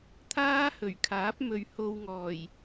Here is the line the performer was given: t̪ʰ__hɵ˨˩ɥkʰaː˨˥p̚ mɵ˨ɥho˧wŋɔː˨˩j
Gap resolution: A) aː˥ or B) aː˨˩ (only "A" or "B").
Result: A